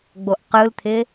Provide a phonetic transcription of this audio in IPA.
ɡ͡b o ʔ q ɯ l t̪ʰ ɪ

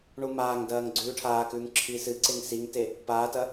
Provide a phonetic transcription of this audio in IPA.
ɳ u m aː ŋ d ɐː ŋ ɡ͡ǀ ʉː ʈʰ aː k ʉː ŋ ǁʰ i s ɨ ǀ e ŋ s i ŋ t e | p aː t ɐ

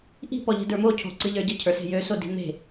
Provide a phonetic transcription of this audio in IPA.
ʔ i̤ p ɔ ʎ e̤ d ə˞ m o cʰ o̤ ǀ ɨ ʎ ə˞ ɟ ə cʰ ə˞ s e̤ j ø s o d i̤ m e̤

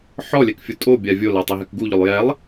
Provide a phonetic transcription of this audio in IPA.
ħ ɔ lʲ ɛ k fʲ u tʼ o bʲ a vʲ o l a tˤ ɛ ɦ ɛ k ɡ u ʎ ʊ lˠ j ɛ lˠ

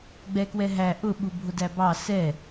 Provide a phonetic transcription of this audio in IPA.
ɡ͡b ɛ k w ɛ ɦ æ ʔ ʊ ɓ u bʱ ʊ d æ b ɑ s ɛ

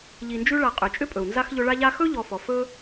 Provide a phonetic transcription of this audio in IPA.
ʎ i˨ n d͡ʒ ʉ˦ ɭ a˨ qʼ ʏ˩ t͡ʃʼ ʏ˥ pʼ ɵ˩ u̯ n z a˥ x ʎ ɵ˦ ɭ a˥ ʎ a˥ x ɵ˥ ʎ ɔ˨ f ɔ˩ f ɵ˦

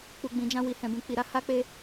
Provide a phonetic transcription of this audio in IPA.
k͡p u˨ ɡ͡b ĩ˨ d͡ʒ ã˧ w i˨ h ɛ̃˨ b ũ˨ k͡p i˨ ɾ a˨˦ h a˦ k͡p e˦

